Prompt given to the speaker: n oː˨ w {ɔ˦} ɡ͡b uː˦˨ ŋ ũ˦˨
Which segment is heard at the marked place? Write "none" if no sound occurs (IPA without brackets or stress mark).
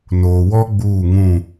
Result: ɔ˦